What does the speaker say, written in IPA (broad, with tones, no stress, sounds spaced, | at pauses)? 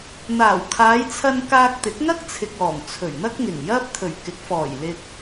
n̪ aː˨˩ w kʰ aː˨˧ j t͡sʰ ɐ˧ n k aː˧ k̚ t̪ ɪ˨˥ k̚ ŋ ɐ˥ k̚ t͡sʰ ɪ˨ k̚ ɔː˨˩ ŋ t͡sʰ ɵ˨˩ ɥ n̪ ɐ˥ k̚ ŋ ɪ˨˩ ŋ j ɐ˥ p̚ t̪ʰ ɵ˨˩ ɥ k ɪ˨˥ k̚ f ɔː˨˩ j l ɪ˧ k̚